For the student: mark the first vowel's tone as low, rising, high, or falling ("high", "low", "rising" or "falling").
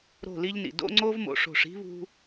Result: falling